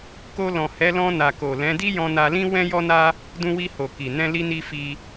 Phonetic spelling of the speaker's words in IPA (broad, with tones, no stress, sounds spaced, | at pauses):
k o˧ l ɔ̃˨ h ɛ˨˦ l ɔ̃˧ n a˨ k o˨ l ɛ̃˨˦ d i˦ j ɔ̃˧ n a˧ l ĩ˦ w ɛ̃˦ j ɔ˦ n a˦ | d ũ˧ w i˧ h o˨ k i˨ n ɛ̃˧ l i˧ n i˧ f i˧